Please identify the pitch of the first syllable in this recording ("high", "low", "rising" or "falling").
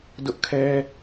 high